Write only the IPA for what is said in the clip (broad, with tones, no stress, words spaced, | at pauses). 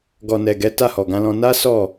ɡɔ˨nɛ˨ɡɛ˨˦ ta˦˨hɔ˨ɡã˨˦lɔ̃˧ na˦ sɔ˦˨